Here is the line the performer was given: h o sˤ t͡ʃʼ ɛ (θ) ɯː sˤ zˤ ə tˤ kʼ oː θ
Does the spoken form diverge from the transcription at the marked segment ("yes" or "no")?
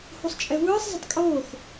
yes